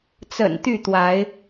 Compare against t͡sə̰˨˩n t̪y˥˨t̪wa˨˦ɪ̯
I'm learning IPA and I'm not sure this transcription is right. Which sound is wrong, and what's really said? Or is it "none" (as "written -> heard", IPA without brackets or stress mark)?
none